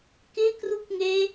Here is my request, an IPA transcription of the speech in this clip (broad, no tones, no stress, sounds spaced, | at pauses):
k ɪ k r u k ŋ e